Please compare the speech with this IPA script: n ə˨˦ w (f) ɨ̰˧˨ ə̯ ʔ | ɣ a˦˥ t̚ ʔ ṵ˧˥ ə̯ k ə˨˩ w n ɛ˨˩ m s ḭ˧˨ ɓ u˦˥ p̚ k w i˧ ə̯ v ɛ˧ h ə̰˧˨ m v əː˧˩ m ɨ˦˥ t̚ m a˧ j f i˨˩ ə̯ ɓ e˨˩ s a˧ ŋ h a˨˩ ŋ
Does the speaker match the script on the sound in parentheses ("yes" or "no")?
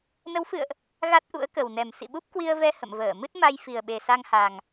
yes